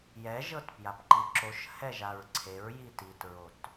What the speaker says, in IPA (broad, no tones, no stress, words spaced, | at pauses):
jɛʒɤtpjap ǃiǁoʃ hɛʒaɹǀʰeɹ jititɹot